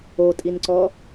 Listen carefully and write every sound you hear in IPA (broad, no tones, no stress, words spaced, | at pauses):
otʼinǀɔ